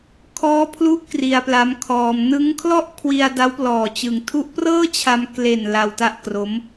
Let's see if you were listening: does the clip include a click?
no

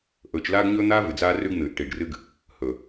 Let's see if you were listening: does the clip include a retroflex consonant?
yes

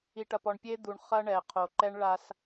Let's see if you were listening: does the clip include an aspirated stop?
yes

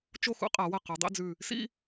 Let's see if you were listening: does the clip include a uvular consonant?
yes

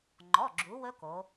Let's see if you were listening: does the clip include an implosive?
no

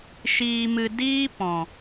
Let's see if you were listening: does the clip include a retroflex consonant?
no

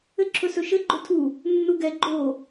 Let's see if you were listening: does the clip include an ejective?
no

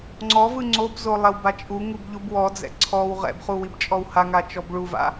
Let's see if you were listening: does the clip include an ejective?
yes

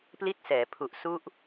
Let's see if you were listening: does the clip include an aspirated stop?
yes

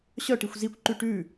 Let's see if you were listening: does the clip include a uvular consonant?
no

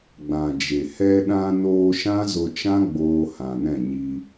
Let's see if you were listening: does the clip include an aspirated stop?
no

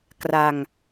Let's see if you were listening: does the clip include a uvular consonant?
no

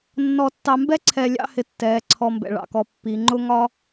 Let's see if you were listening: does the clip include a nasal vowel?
no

